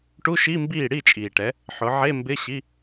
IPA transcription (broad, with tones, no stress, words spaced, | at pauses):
ʈu˧˥˧ʃi˧˥˧mbiː˥˩ ɽi˥˩t͡ʃʼiː˩ʈɛ˩˧ | ħʊ˩˧ʕe˧˥˧mbɪ˧˥˧ɕi˧˥˧